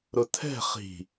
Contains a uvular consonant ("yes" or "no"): yes